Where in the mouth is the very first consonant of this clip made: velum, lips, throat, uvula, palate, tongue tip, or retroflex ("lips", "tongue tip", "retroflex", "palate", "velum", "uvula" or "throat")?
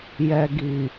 palate